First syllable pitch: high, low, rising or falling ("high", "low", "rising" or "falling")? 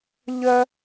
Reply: high